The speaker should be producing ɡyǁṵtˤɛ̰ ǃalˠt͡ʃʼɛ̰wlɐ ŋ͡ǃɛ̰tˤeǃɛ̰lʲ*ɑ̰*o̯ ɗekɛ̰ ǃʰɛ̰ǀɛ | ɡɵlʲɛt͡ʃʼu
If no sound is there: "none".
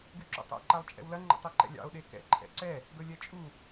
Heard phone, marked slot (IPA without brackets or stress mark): ɑ̰